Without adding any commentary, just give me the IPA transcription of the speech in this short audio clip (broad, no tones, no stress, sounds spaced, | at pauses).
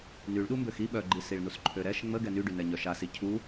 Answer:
n y ɭ ɗ u m b ø x i ɓ œ ɡ͡ǃ i s i ɭ n u s ǃʰ ø ɾ ɛ ʃ ŋ͡m ə ɡ ɛ n y ɖ y n ɛ ɲ œ ʃ a s i cʰ u